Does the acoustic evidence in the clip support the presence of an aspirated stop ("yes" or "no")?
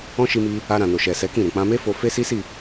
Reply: no